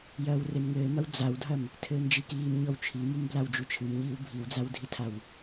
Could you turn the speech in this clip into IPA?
jɐːwremŋɘːmɐw d͡zawdʱɐm | tʰɘːmd͡ʒikiːmɲɔw t͡ʃʰimum blawd͡ʒut͡ʃʰɨmɲiːw bʱiwd͡zawdʱitʰaw

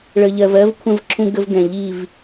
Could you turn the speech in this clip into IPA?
ɭə˨ʎɜ˨vɜ˦vkʷʰə̃˦˨v ǁʰũ˦ɡə˦v ɡɛ̃˨ ʎi˦˨v

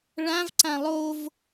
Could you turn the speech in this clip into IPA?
ɭãvǀã lˠov

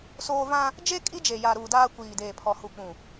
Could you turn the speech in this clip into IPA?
soː˦ vã˦ | d͡ʒe˦ kʼi˦d͡ʒe˨ ja˨ ɾuː˨daː˦ kʷiː˨deː˨pʰɔ˨ hu˨k͡pũ˨

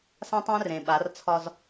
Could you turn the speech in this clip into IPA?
sã˦tˤæ̃˦rẽ˨ ɓa˨˦rt͡sʰɒ˦z

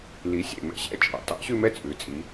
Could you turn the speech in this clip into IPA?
li˨˥sʲḛ˧˩mɛ̰˥˧ ɕɛ̰˥˧ t͡ʃʼɑ̰˩˧tɑ̰˨˥ɕʉ˥˧ mɛ˥˧t͡sʼʉ˩˧t͡sʼi˩˧

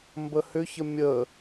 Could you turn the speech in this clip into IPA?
mbəhʏçə mʲə

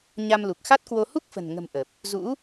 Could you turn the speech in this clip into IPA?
ɲa˧mlu˨˩k̚ xa˦˥t̚kwo˧ hu˦˥k̚fə̤˨˩n ŋə̤˨˩m ʔə˨˩p̚ | zṵ˧˥

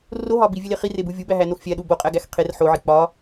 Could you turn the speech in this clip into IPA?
roɦɒ bivʲele χirebu vʲubæɦænox fʲæɗu boqʼæɡæx qʰer ħoʕi k͡pɒ

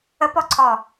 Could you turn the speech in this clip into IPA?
əpɔǀʰɔ

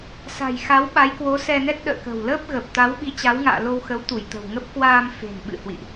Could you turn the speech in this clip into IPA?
sa̤˨˩jxa˨˦w ɓa˨˦jkwo˨˦sɛ˧nɛ˦˥t̚ ɗə̰ː˧˨kə̤˨˩w ləː˦˥p̚ ɣəː˨˩p̚ t̪a˨˦wɓi˨˦t͡ɕa˨˦wŋa̰ː˧˨ lo˧wxə˨˦w t̪u˧˩jt̪ə̤˨˩wŋə˦˥p̚ kwaː˧m fe̤˨˩nɓɨ̰˧˨ hwḭ˧˨ʔ

